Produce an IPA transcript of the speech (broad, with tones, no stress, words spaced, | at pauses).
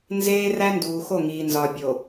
nzeː˦ræ˦nduː˨xo˦˨ ŋiː˨nzɒ˨ bʲo˨